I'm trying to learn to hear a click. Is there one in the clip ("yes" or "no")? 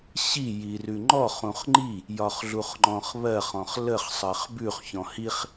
yes